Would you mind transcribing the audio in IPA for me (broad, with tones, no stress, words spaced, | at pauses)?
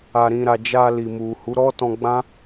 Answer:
a˨ɾĩ˨ɾa˨ d͡ʒa˧li˨ mu˨hu˨˦ ɾɔ˦tɔ̃˧ɡ͡bã˦